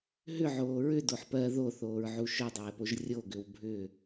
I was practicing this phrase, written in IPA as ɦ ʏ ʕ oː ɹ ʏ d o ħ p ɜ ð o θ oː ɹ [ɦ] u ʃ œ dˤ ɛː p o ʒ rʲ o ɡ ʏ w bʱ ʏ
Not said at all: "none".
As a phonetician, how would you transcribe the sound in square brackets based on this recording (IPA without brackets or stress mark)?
ʕ